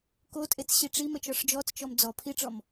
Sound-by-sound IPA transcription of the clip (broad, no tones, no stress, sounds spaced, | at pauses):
k o tʼ e t͡s ɕ i ʈ͡ʂ i m ə t͡ʃ ɔ ʂ d͡ʒ ɔ t͡s t͡ʃ ɔ m d͡z ɔ pʰ i ʈ͡ʂ ɔ m